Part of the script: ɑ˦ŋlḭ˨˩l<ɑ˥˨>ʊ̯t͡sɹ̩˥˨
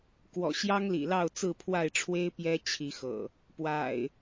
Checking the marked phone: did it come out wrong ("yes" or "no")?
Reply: no